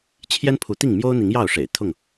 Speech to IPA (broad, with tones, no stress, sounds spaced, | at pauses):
t͡ɕʰ j ɛ˦ n pʰ u˨˦ t̪ i˥˨ ŋ m j o˦ ʊ̯ n̪ i˨˦ ŋ j ɑ˥˨ ʊ̯ ʂ ḛ˨˩ ɪ̯ t̪ʰ ʊ˥˨ ŋ